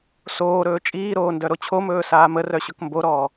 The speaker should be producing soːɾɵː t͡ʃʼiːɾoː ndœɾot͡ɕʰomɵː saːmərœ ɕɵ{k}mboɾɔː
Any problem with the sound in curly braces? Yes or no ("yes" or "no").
no